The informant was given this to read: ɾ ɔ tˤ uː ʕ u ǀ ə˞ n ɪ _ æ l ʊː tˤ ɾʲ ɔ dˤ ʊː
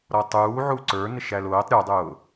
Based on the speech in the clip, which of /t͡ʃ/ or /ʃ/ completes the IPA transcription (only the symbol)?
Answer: ʃ